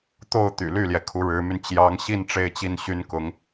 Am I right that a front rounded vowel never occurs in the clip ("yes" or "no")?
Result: no